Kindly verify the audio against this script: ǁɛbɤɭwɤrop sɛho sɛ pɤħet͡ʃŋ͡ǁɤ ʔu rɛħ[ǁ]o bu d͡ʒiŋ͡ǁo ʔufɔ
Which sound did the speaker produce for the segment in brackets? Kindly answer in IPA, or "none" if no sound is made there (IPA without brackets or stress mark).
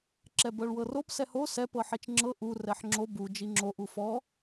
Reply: ŋ͡ǁ